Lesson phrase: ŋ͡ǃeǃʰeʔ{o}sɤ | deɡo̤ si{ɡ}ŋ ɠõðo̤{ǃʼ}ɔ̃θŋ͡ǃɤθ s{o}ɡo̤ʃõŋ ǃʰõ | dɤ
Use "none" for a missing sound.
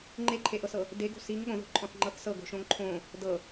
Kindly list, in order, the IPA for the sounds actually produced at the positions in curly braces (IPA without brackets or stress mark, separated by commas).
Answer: ɤ, none, ǃʼ, ɤ